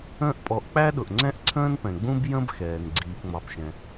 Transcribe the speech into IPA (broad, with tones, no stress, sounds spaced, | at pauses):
ə̃ː˦ ʔ pʼ ɔ˨ ʔ k͡p æ˥ ɗ ʊ˩ ʔ ŋ͡ǀ ɛ̃˥ ʔ ǀʰ ə̃ː˥ n p ɛ̃˩ ɡ͡b ũ˥ b j ə̃˥ b x ɛː˩ n ɡ͡ǀ iː˨ p ŋ͡m ɑ˨ p ʃ ɛ̃˨